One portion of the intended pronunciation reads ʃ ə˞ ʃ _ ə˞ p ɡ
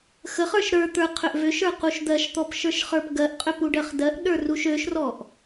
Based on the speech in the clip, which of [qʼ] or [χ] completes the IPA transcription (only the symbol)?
χ